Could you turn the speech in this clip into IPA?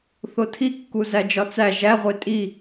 θotʰi kːuzæd͡ʒɒt͡sæ ʒæ ʁʷetʼi

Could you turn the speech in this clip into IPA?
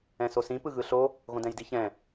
ɛ̃sosĩ pɯɣɯɬo | ɣõdɛ̃jdiçɛ̃

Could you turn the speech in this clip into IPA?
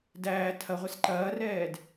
dæː tʰɐʁʷɛs ǃɐːrɛːd

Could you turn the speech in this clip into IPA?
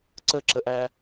ǀəǁəʔæ

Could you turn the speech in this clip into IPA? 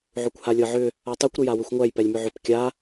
ʕʏkʷhalʲɤʕʏ | atˤɛkʷ ɾʏjawʏxʷŋʷæj pɛlʲmʏʕʏp kʲa

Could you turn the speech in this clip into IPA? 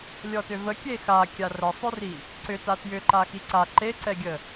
lʲɔtʏvə kʲexa kʲarəsˤʏri | ǀʏ tatjʏǃa xiǀa ǃeǀɛɡʲə

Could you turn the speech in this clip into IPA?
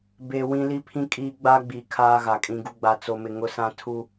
be˦ wĩ˦li˦pʰĩ˦kʼiː˦ ɡ͡ba˦ɡ͡bi˨ kʰaː˦ɣa˨kʼĩ˦ɡu˦ ɡ͡ba˦t͡so˦mɪ˦ ŋʊ˦sã˦ tʰu˦

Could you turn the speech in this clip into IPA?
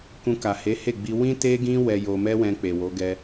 kũ˧ka˨he˨˦ he˦˨ɡ͡bi˧ wĩ˦te˦ɡĩ˦ wɛ˧jo˧mɛ˦wɛ̃˧ k͡pe˨wo˨˦ɡɛ˦

